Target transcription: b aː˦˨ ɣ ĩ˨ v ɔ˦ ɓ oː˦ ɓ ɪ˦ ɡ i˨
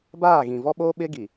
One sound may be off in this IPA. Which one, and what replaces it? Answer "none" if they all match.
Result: none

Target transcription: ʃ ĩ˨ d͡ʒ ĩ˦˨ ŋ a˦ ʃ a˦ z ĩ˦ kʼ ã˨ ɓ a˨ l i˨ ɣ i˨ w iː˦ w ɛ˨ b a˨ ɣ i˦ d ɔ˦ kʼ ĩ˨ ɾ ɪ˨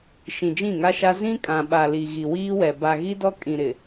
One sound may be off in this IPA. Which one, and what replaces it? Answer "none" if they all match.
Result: none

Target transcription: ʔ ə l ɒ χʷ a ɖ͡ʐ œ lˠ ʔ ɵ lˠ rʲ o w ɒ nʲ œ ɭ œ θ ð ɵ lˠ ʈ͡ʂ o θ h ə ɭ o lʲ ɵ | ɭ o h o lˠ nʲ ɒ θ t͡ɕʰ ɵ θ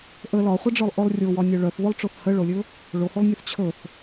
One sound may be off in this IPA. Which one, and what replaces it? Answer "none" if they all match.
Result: none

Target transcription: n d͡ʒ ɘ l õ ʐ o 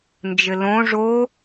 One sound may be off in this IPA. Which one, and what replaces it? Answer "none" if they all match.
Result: none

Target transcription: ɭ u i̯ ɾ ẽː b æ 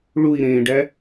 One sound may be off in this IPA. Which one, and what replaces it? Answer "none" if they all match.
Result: b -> ɖ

